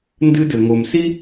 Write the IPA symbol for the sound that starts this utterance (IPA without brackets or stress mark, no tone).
n